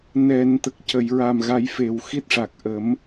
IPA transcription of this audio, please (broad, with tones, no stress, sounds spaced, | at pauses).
n ɛ˨˩˨ n t̪ ə˨˩ k̚ c ə˨˩˨ j ɹ a˨˩ m ɣ a˨˩˦ j f e˨˩ w x i˦˥ t̚ ʂ a˨˩ k̚ ʔ ə˨˩˦ m